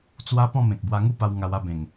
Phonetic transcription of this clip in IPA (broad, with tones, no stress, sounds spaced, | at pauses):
t͡s w a˦ p ɔ̃˥˧ m ẽ˨ k̚ b w a˧ ŋ u˥˧ p a˧ w ŋ a˧ w a˥˧ b ẽ˨˩ ŋ